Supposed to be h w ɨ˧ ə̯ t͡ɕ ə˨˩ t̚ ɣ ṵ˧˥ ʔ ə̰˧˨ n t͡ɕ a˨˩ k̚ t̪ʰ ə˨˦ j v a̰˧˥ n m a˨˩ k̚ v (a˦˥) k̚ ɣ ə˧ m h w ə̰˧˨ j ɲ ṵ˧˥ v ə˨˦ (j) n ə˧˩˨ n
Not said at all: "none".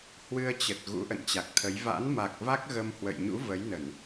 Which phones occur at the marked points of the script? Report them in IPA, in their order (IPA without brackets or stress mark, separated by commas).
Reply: a˦˥, j